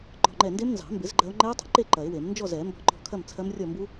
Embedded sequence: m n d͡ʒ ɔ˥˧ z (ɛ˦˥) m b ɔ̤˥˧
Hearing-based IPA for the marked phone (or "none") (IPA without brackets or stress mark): ɛ˨˩˦